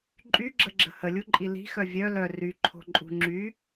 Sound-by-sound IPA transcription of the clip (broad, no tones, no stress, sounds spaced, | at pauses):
ǃʼ y ɡ͡ǁ ə ɡ͡ǁ ə̤ h ə lʲ u ǃʼ i l i̤ x œ vʲ œ l œ r y ǃʰ o̤ ǃʼ ṳ ŋ͡ǁ y